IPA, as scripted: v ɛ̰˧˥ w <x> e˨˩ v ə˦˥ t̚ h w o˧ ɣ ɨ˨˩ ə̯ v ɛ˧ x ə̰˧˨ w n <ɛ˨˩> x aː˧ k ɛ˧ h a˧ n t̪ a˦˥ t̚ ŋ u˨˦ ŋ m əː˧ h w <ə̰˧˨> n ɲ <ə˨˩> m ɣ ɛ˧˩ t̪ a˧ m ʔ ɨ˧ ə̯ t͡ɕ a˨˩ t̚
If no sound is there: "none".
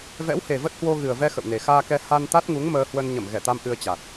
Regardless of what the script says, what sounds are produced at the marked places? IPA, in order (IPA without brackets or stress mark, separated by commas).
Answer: h, e˨˩, ə˧, ə˧˩